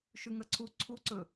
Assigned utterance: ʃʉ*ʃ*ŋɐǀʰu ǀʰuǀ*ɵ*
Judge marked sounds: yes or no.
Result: no, yes

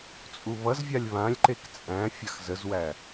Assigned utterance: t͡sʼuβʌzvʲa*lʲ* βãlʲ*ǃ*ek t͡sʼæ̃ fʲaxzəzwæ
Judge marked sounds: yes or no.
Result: yes, yes

